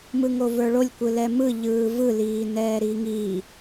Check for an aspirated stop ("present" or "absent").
absent